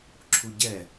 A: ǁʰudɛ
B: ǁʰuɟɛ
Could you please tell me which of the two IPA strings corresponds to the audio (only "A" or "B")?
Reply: B